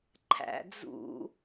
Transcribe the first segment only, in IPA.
ǃʰ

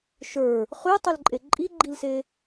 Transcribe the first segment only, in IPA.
ʃ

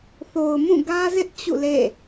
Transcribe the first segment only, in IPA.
θ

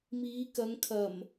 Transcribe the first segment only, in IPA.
m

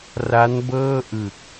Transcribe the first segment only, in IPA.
r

